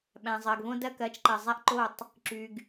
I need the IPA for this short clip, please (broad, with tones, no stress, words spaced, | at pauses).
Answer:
ɓæ̃˨ zˤɜ˨ɡβõ˦dɜ˦ kɜ˨˦t͡ʃ ǃɜ˨zˤæ˦ʔ ǃo˦˨tˤ | ǁy˨ɡ